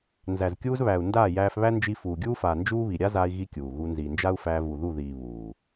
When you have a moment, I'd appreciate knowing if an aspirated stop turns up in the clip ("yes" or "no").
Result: no